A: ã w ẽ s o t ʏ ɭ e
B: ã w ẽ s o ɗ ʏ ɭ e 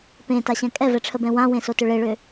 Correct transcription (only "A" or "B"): A